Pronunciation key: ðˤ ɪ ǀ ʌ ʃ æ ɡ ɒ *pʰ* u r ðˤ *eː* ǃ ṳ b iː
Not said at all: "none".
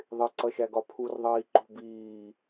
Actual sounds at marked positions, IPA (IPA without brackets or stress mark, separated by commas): pʰ, iː